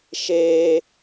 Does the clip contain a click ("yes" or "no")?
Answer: no